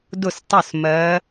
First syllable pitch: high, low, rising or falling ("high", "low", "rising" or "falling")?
falling